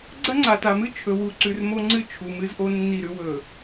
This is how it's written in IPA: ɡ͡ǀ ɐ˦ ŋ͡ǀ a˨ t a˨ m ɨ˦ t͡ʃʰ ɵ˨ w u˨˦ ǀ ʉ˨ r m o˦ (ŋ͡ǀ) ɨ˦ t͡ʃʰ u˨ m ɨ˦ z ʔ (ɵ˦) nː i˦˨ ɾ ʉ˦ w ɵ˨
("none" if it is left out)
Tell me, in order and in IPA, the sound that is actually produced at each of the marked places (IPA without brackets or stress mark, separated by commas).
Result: ŋ͡ǀ, o˦